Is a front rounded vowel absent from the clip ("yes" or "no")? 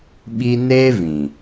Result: yes